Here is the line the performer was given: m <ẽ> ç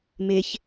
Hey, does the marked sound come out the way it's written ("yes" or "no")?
no